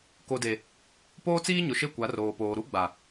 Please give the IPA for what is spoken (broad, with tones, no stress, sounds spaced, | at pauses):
k o˨ d e˨ | p oː˦ t͡s iː˦ ɲ ʊ˨ ʃ e˦˨ kʷ a˨˦ r oː˨ p oː˨ ɾ u˦ ɡ͡b a˨